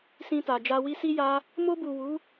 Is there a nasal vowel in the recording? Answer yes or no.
yes